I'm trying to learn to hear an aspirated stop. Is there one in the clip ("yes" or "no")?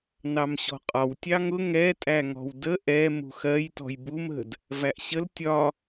no